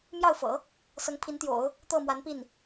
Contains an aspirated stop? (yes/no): yes